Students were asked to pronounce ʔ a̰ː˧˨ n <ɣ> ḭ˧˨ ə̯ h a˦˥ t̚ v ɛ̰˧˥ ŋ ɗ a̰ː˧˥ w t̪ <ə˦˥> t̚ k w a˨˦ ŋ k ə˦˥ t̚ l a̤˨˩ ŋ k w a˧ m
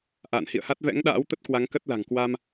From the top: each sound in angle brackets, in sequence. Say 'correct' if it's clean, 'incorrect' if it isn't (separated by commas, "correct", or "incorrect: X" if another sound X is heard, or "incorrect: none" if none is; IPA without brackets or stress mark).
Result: incorrect: h, correct